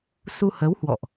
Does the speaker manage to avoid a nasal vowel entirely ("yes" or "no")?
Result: yes